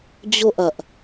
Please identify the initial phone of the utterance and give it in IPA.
d͡ʑ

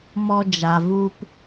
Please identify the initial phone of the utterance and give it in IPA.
m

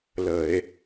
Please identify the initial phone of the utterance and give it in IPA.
l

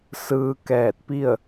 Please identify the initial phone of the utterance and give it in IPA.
s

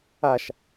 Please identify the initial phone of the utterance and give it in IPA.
a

